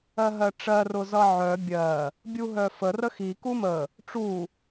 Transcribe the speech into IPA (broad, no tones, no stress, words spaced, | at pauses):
ɜɦɜʈ͡ʂɜ rʊzʌʕœ bʲɜ | bʲuɦœfə rəxi kumə | ʈ͡ʂu